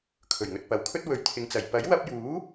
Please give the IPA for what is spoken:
kʰ ɵ˨˩ ɥ ŋ ɵ˨ t̚ p ɐ˨˥ w kʰ ɵ˥ t̚ w ɵ˨˥ ɥ t̪ʰ ɪ˨ ŋ t͡s ɐ˨˩ j p ɐ˨˥ j w ɐ˧ p̚ j uː˨˥

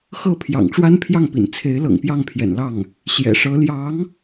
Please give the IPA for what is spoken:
x ɤ˥˩ pʰ j ɑ̰˨˩ ŋ ʈ͡ʂ w a˥ n pʰ j ɑ˥˩ ŋ p ḭ˨˩ n t͡sʰ e˧˥ ɪ̯ l ɤ̰˨˩ ŋ p j ɑ˥˩ ŋ pʰ j ɛ̰˨˩ n l ɑ˥˩ ŋ | ɕ j ɛ̰˨˩ ʂ ɤ˧˥ l j ɑ˧˥ ŋ

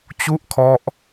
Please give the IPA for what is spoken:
t͡ɕ u˥˩ ʔ kʰ ɔ˦˥ ʔ

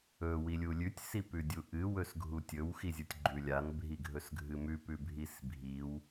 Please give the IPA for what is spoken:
ɵ w i lʲ u lʲ ʉ tʲ s i p ʉ dʲ u ʔ ɨ w ɵ s ɡʱ u tʲ ɵ w x i zʲ u tʲ ɡ͡ǃ ʉ lʲ a n bʱ i ɡʱ ɵ s ɡʱ ɨ m ʉ p ʉ bʱ i s bʱ i w

